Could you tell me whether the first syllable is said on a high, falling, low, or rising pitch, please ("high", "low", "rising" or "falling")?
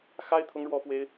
high